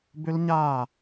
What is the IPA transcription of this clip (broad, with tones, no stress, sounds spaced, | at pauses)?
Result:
b ʏ˦˥ l ɲ a˥˩